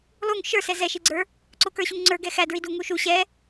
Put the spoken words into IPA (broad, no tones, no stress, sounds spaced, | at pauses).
lˠ u ŋ ʃ ə˞ s ɛ z ɛ ʃ i ɡ͡ǀ ə˞ | ǀ ʊ k ə˞ ɕ u ŋ ŋ͡ǀ ə˞ ɡ ɛ x æ d ɹ i d u ŋ u ʃ u ɕ ɛ